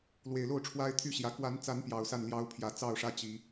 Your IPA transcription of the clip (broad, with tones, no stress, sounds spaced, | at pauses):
l w e˨˩ ɪ̯ l o˥˨ ʊ̯ ʈ͡ʂʰ w a˦ ɪ̯ t̪ʰ y˦ ɕ j ä˨˦ k w a˨˦ n t͡s a˨˦ n p j ɑ˨˩ ʊ̯ s a˥˨ n l j ɑ˦ ʊ̯ pʰ j ä˨˦ t͡s ɑ˥˨ ʊ̯ ʂ ä˦ t͡ɕ i˨˦